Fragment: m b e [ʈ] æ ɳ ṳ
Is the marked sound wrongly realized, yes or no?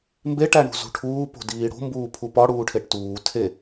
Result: no